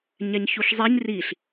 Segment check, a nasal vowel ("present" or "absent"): absent